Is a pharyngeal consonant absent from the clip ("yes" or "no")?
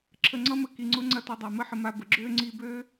no